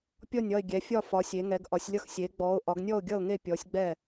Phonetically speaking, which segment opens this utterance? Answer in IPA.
pʲ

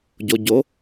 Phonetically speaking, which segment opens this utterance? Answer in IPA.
ɟ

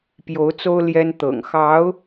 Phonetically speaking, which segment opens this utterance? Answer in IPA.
p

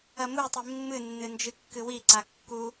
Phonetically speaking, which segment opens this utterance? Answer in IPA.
ɐ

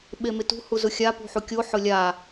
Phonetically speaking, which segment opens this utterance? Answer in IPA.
ɓ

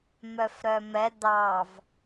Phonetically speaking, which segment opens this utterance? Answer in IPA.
m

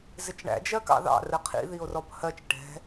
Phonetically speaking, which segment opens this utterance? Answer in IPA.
z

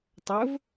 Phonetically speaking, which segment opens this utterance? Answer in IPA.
tˤ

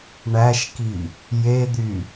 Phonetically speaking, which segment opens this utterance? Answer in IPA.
ɳ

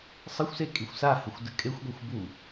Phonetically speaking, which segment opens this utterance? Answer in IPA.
sˤ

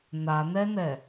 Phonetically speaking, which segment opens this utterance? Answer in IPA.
n̪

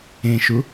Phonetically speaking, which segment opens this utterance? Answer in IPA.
ẽ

